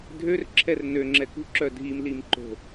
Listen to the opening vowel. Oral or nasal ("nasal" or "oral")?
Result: oral